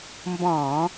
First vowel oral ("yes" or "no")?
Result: no